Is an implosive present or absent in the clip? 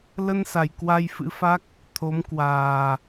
absent